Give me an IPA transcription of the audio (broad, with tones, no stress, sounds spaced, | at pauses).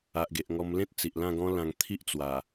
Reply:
a˨ ʔ ɡ e˨ ʔ ŋ ɔ˧ m l ẽ˦ t̚ t͡s i˨ ʔ l ã˥˧ ɡ ɔ̃˦ l ã˧ ŋ t̪ʰ i˦ ʔ t͡s w a˨˩